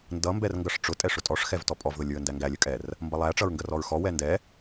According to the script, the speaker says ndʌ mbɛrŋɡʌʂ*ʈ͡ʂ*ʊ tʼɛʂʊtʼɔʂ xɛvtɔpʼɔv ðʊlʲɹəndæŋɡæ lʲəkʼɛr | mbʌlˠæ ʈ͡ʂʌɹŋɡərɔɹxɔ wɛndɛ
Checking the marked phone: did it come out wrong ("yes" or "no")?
no